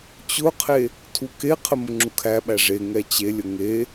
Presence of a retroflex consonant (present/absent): present